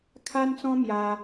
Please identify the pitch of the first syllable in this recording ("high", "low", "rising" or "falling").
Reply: high